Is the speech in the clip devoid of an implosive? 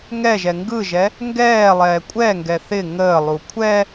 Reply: yes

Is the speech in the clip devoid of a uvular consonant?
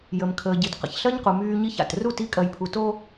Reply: no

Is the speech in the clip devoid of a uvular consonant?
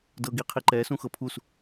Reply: no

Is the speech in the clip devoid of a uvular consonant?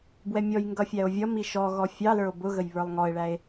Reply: yes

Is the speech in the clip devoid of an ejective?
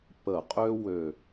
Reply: no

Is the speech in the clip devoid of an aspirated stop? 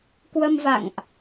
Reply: yes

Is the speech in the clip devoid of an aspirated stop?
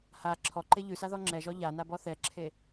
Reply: no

